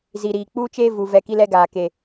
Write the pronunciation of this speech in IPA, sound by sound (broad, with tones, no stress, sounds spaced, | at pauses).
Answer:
z i˨ ɾ iː˨ k͡p uː˦ t͡ʃ eː˦ v u˨ v ɛ˦˨ k i˦ l ɛ˦ ɡ aː˨ k e˨